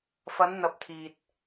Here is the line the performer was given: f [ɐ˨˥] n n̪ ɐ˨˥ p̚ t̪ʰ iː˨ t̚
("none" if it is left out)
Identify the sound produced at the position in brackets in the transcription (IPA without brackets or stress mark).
ɐ˨˧